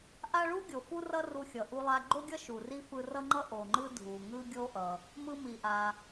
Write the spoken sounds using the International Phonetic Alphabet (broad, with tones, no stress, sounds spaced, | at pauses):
ʔ a˥ ɭ u˥ ɡʲ o˩ f u˥ r ʌ˥ r u˧ xʲ ʌ˩ ʔ u˧ lˠ a˧ ɡ͡ǃ o˥ ɡʲ ʌ˥ ʃ u˩ r i˥ f ɯ˧ r ʌ˥ ŋ͡ǃ ʌ˥ ʔ o˩ ŋ͡ǃ ɯ˥ dʱ u˩ ŋ ɯ˥ ɡʲ o˥ ʔ ʌ˩ | m ɯ˧ m i˩ ʔ a˩